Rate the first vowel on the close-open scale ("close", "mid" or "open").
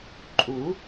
close